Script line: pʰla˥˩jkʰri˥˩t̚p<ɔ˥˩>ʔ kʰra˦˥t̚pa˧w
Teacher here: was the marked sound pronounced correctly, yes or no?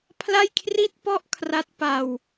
yes